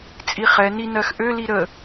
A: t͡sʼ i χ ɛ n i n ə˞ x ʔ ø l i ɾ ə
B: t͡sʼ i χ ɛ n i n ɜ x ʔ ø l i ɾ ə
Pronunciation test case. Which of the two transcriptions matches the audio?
B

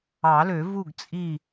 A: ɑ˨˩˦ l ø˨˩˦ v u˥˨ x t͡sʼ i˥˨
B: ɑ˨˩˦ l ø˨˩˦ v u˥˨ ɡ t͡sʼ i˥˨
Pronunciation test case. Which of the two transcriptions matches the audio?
B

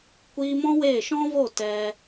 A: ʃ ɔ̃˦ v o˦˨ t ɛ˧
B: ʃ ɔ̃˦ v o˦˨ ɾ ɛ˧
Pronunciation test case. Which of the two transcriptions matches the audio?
A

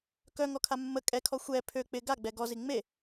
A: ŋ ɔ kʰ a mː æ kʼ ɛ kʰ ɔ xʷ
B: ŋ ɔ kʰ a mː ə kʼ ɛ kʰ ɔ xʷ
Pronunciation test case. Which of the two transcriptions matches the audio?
B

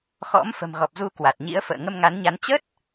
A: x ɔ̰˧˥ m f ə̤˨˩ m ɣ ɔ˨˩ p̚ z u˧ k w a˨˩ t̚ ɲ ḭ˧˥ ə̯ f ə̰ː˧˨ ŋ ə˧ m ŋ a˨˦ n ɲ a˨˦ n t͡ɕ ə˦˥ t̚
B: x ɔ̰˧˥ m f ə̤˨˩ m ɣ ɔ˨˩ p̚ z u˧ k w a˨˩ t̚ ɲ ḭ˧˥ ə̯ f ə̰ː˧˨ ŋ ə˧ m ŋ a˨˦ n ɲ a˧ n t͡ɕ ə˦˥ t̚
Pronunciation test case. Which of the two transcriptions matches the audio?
A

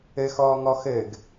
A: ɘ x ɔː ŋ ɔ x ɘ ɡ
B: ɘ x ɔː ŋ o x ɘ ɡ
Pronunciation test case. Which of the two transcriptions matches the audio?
A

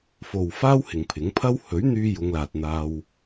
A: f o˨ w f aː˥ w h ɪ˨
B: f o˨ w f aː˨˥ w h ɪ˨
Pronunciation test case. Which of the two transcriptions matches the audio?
A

